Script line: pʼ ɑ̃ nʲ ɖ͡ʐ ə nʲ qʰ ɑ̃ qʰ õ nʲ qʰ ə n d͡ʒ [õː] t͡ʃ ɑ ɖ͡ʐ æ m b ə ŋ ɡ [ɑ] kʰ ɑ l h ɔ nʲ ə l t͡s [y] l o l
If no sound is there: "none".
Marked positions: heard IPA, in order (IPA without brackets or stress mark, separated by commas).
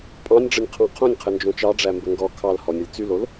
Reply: õ, ɔ, y